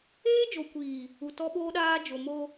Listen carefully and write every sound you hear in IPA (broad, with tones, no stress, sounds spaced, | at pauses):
eː˦ d͡ʒ o˨ kʷ iː˨ | u˨ t ɔ˦ ɓ oː˦ ɗ aː˦ d͡ʒ o˨ m o˦